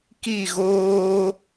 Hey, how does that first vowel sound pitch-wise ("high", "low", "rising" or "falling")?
falling